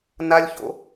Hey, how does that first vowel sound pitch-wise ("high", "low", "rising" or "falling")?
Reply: high